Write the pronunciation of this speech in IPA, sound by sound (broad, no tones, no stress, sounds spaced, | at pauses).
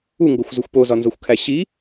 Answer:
u ŋ ɡ o xʷ z u xʷ p o z ɒ n z o xʷ kʰ æ ɕ i